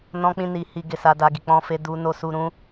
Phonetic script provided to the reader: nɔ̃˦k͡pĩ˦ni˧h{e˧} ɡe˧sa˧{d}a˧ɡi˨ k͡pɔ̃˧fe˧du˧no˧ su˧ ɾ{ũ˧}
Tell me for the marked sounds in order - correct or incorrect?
incorrect: i˧, correct, correct

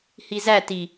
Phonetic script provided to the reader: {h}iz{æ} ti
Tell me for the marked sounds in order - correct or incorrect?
correct, correct

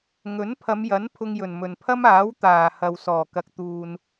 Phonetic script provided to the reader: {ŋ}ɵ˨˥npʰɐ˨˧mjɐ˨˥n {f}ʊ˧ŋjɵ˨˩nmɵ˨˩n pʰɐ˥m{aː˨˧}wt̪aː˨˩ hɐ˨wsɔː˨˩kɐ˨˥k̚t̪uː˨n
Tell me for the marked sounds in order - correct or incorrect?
correct, incorrect: pʰ, incorrect: aː˨˥

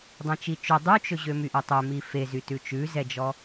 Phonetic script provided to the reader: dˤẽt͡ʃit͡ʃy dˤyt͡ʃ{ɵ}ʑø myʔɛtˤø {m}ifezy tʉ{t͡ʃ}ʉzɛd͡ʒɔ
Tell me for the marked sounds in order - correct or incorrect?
correct, correct, correct

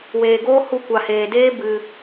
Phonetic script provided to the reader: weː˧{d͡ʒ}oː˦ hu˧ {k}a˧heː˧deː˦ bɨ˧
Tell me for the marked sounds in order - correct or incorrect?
incorrect: ɡ, incorrect: kʷ

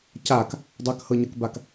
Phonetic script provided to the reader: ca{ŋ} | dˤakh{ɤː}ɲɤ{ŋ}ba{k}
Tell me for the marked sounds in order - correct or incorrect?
incorrect: k, incorrect: ɤ, incorrect: k, correct

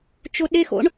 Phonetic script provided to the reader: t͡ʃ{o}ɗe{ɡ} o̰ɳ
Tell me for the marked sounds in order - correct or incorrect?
correct, incorrect: x

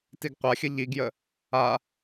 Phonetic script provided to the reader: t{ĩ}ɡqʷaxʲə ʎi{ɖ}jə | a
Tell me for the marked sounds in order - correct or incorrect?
incorrect: i, incorrect: ɡ

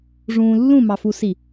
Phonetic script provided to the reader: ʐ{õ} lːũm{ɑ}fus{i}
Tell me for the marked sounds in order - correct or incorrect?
incorrect: ũ, correct, correct

